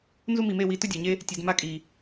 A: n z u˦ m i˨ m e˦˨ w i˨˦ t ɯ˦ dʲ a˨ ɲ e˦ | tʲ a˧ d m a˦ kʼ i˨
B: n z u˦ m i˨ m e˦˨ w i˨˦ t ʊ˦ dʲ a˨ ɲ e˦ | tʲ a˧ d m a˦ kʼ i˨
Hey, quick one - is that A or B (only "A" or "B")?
B